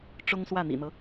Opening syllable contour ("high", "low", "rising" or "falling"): high